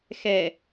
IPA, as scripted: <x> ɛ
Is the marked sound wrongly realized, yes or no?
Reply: no